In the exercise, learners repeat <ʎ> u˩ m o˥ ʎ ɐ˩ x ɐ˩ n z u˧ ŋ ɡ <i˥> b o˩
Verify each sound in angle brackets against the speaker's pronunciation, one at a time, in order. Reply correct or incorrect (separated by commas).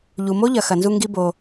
correct, incorrect